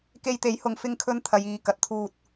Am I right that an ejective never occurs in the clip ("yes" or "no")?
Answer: yes